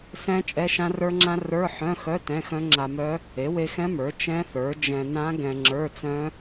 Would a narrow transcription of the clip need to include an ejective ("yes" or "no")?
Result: yes